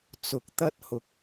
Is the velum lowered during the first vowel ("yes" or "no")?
no